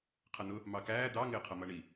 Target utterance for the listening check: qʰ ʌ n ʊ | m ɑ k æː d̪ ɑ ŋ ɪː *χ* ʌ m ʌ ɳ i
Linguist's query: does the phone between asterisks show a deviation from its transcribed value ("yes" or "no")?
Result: yes